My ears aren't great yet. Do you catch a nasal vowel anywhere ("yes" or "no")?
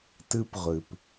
no